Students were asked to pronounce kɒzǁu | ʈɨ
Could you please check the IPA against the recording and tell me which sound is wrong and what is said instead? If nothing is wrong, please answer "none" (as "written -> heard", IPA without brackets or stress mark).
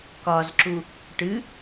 none